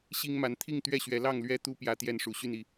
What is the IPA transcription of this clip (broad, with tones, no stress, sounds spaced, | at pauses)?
ɕ i˦ ŋ m a˨˦ n t̪ʰ i˥˨ ŋ t̪ ɥ ɛ˥˨ ɕ ɥ ɛ˨˦ l ɑ˥˨ ŋ l ɥ ɛ˦ t̪ u˦ p j ä˨˦ t̪ j ɛ˥˨ n ʂ u˨˩ ɕ y˥˨ n i˨˦